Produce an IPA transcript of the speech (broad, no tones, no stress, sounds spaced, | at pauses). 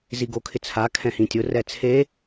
z i ɡ o kʰ ɪ t͡sʰ a kʰ ɛ̃ h ĩ tʲ ʊ r ɛ t͡sʰ e